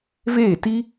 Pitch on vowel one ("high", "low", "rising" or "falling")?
falling